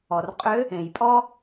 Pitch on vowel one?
low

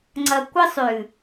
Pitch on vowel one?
low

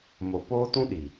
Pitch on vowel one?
low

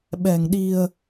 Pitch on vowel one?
low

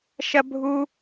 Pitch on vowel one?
high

